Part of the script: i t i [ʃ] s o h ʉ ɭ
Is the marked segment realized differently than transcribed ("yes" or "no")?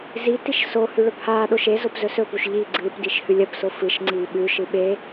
no